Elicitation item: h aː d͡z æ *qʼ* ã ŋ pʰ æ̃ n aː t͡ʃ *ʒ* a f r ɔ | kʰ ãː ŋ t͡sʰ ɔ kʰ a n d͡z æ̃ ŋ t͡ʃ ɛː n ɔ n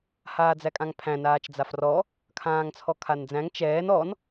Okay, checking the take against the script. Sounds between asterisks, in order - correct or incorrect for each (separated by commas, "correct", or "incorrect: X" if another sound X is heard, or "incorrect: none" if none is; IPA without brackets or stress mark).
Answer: incorrect: kʼ, incorrect: d͡z